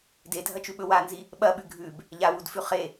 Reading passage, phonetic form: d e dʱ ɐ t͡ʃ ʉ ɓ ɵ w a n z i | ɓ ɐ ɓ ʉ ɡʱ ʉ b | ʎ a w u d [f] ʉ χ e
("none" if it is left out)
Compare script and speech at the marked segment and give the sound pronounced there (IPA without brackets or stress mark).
f